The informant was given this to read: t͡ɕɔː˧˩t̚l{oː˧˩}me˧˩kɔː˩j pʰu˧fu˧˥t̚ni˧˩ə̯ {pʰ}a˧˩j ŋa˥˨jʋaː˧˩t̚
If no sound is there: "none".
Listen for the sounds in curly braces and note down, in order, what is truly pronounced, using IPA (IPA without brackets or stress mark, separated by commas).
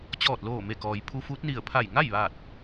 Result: oː˧˩, pʰ